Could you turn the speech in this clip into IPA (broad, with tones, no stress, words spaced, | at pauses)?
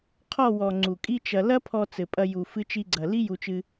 qʰɔ˦˨wɔ˨ ŋ͡ǀu˨kʼi˦t͡ʃɐ˧ lɐ˦pʰɔ˧ t͡sɘ˨pʼɐ˧ ju˨ fɨ˧t͡ʃi˧ɡ͡ǀɐ˨ li˦ju˧t͡ʃɨ˧